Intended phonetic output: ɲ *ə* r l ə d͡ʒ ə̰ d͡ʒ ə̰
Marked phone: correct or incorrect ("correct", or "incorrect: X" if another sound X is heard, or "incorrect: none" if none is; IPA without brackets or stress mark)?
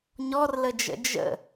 incorrect: ɔ